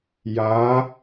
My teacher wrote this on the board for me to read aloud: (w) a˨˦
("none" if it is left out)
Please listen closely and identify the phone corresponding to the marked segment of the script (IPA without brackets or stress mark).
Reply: j